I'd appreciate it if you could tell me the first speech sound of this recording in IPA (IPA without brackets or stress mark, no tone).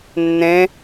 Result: nː